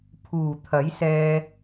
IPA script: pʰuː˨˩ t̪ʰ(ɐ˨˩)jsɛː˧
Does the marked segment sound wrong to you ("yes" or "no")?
yes